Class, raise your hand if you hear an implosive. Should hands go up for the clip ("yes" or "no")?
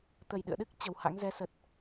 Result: yes